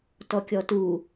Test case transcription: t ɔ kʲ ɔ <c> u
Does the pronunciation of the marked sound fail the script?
yes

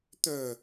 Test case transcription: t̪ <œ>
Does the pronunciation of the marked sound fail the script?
yes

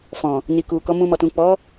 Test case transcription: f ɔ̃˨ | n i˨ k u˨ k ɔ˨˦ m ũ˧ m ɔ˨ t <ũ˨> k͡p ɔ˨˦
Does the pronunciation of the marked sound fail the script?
no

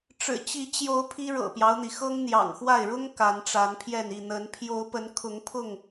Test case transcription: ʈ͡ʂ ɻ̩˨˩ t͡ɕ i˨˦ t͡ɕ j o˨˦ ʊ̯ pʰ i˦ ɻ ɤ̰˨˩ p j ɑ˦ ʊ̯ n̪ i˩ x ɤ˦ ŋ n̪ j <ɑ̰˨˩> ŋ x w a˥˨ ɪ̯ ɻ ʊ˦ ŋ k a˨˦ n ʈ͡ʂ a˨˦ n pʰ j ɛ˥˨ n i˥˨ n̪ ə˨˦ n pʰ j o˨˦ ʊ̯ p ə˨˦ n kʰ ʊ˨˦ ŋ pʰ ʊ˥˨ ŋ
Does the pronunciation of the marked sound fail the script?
no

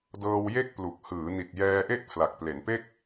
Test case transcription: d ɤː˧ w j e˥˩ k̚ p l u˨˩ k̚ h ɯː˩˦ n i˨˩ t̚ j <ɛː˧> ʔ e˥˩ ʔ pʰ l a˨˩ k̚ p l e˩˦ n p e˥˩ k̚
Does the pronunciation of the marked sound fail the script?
no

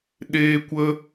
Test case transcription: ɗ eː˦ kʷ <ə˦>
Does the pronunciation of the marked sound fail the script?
no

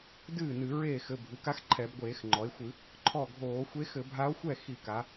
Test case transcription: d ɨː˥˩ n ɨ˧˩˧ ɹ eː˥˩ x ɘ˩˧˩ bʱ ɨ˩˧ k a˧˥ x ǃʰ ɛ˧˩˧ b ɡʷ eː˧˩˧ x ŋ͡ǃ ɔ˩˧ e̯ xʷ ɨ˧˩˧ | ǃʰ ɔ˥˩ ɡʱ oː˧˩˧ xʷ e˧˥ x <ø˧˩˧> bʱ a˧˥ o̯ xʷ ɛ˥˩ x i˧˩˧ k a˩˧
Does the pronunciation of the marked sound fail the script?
yes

